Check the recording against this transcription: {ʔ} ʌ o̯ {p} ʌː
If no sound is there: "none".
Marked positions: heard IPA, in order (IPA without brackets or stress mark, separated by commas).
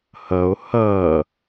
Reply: h, h